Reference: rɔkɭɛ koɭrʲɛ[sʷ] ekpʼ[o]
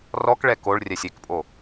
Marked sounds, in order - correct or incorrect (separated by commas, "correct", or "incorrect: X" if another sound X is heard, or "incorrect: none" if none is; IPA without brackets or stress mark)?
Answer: incorrect: sʲ, correct